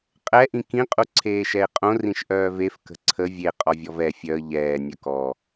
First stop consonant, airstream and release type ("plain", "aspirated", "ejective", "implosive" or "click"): ejective